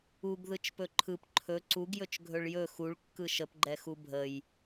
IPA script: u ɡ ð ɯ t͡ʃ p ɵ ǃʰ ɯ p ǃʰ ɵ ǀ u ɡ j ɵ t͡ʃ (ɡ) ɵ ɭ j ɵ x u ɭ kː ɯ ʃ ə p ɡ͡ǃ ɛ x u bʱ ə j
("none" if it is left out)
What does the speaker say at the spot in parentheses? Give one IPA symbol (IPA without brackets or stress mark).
ɡʱ